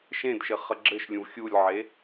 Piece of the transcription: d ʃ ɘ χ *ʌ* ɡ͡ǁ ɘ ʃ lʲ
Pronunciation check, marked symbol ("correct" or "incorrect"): correct